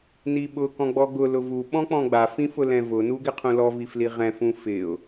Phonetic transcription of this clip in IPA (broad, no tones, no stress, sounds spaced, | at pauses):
n i ɓ ʊ k ɔ̃ ɡ͡b ɔ ɡ ʊ l ʊ v u ɓ ɔ̃ k͡p ɔ̃ ɡ͡b a f ĩ f ʊ l ɛ̃ v ʊ n u ɡ ɪ qʰ ũ l ɔ v i f l i ʁ ɛ̃ f ũ f ɪ ʊ̯